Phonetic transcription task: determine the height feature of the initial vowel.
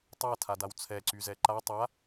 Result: low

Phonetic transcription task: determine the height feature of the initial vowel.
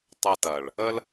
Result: low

